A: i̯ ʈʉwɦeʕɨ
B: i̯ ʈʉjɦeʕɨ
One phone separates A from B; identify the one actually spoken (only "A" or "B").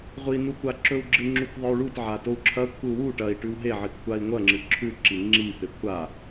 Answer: A